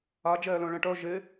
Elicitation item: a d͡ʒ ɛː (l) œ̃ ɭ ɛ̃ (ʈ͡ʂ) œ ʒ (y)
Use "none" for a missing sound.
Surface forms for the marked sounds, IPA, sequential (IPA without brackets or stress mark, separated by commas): l, ʈ, e